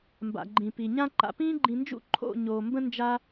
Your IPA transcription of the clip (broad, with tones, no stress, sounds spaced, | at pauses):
m b a̰˨ ɡ͡ǃ ĩ˨ p i˨ ɲ ã˦ ǃ a̰˨ p ĩː˧ ɡ͡ǃ ĩ˨ n d͡ʒ ṵ˧ ǃʰ o̰˦˨ ɲ oː˨ m b ə̃˦ n d͡ʒ a˦